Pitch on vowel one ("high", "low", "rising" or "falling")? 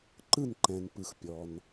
falling